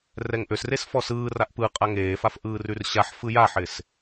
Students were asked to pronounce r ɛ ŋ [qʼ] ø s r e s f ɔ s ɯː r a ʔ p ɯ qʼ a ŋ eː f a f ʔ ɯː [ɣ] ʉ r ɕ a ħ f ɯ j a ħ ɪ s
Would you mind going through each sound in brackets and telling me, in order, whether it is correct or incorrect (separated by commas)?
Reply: incorrect, incorrect